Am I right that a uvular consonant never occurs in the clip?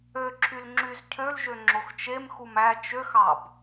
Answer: yes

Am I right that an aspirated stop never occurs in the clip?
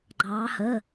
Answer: yes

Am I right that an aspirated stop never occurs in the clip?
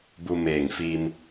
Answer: yes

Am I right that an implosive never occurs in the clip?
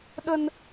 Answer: no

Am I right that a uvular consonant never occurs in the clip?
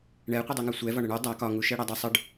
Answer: no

